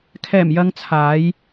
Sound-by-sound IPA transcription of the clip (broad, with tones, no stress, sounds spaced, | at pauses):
kʰ ɛː˨˩ m j ɐ˧ ŋ t͡sʰ aː˨˧ j